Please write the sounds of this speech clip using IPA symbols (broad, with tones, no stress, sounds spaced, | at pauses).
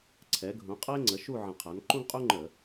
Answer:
ǀʰ ɛ˩˥ ɡʱ ũ˩˥ qʼ ɐ˥ e̯ ŋ͡ǀ ə˩˥ ʃ u˥˨ ʕ ə̃˧˩˧ qʰ a˩˥ n ǃ ũ˥ ɡ qʼ u˥ ŋ͡ǃ ə˧˩˧